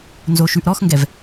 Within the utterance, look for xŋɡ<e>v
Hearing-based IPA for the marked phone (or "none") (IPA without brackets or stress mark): ɛ